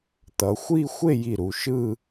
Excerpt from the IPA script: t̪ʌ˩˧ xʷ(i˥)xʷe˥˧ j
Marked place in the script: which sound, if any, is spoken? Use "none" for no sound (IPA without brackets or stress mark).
i˥˧